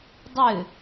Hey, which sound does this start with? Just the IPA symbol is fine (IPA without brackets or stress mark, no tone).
dˤ